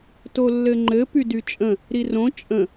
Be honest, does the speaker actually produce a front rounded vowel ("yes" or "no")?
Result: yes